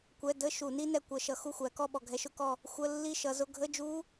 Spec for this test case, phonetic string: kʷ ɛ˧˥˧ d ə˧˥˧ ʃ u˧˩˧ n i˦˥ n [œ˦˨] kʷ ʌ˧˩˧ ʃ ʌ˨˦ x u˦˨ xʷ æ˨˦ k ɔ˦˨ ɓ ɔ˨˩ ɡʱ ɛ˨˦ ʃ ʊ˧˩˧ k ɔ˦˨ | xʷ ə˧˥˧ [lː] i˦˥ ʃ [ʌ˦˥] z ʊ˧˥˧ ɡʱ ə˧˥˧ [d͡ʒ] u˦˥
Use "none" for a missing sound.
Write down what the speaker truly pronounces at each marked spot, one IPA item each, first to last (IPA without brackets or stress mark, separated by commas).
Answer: ɛ˦˨, lː, ʌ˨˦, d͡ʒ